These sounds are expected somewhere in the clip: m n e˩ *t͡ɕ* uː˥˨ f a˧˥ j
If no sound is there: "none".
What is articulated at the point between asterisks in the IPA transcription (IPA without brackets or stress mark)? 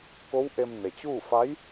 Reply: t͡ɕ